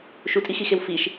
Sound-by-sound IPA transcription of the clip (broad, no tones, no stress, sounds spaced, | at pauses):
ʃ u tʼ i x i x e w f i ʃ